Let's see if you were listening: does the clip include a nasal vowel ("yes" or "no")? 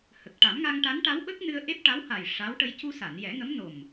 no